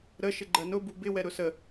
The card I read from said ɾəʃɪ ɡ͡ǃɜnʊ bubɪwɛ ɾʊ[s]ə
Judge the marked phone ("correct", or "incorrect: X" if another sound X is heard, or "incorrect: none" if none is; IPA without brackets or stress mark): correct